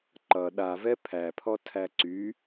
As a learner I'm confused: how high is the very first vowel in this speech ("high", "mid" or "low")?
mid